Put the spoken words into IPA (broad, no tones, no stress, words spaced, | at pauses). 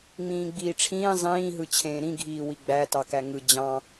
ŋ͡mĩːɡ͡biːʈ͡ʂʰĩː zˤĩː ɦɯt͡ɕʰẽːɾĩ ɡʱiːwiɡ͡bæ tɑkæŋɯ d͡ʑɑ̃